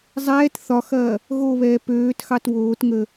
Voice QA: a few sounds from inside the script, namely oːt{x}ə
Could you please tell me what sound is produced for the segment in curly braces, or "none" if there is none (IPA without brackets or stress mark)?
ŋ